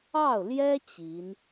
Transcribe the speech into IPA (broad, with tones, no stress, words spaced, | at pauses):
ɑ˥˩ʊ̯ljɛ˥ t͡ɕi˧˥n